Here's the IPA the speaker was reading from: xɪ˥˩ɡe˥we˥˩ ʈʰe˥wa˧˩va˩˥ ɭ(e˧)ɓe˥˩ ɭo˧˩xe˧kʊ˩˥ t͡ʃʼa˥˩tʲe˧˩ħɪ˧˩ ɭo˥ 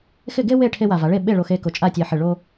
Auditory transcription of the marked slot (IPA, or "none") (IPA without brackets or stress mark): e˥˩